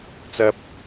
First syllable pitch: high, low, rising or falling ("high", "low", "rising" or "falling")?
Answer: high